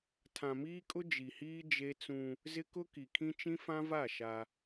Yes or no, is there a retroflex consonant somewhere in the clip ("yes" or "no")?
no